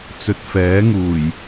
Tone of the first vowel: low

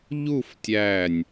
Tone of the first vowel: falling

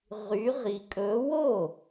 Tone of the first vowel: rising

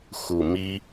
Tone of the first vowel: low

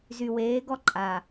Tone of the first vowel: low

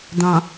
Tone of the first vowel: low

